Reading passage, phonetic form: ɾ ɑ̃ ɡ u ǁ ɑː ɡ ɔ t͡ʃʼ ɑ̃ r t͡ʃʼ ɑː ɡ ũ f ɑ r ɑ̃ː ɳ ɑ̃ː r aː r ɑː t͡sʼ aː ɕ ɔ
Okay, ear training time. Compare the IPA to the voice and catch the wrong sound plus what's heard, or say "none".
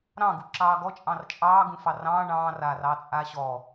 none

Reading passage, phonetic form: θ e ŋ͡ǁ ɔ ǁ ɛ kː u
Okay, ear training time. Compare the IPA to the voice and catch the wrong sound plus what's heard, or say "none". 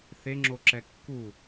ɔ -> o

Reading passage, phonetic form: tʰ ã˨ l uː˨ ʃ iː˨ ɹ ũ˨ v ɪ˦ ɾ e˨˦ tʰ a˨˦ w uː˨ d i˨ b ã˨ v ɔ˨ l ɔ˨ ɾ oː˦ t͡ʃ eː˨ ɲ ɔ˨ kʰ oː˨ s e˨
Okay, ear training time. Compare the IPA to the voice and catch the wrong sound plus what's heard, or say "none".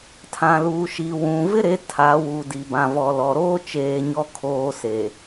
ɹ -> w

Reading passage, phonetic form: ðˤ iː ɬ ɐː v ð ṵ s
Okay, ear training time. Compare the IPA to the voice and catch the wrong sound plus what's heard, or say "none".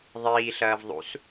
ð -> ðˤ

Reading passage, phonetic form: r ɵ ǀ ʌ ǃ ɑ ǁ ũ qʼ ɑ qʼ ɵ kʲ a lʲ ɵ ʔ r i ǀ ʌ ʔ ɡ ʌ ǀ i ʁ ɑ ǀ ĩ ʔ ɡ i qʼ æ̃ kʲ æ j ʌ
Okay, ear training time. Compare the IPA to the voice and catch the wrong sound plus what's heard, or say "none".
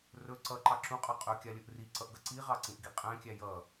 none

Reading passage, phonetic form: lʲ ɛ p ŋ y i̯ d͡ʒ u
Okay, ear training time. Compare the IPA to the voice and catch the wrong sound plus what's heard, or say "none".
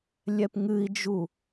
y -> ɨ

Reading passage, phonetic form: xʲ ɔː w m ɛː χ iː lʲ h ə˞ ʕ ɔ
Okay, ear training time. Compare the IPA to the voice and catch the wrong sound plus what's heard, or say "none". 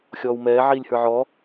χ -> ʕ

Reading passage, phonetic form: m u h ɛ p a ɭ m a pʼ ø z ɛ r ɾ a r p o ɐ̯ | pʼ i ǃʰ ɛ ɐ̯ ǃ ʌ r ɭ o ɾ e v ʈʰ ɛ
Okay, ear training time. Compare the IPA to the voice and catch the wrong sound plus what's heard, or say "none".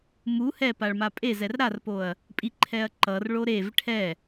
ø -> e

